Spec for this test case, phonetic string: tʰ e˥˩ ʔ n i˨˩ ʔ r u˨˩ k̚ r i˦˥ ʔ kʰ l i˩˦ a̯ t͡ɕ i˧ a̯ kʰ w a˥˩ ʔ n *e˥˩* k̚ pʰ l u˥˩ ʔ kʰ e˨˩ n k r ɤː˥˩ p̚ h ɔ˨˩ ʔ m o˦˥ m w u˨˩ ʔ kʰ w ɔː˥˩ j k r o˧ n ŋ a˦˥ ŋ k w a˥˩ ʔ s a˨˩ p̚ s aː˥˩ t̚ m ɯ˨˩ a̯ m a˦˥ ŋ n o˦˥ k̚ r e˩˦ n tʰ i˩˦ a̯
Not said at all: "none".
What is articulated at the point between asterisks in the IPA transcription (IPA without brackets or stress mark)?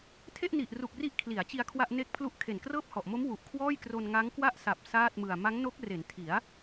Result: e˥˩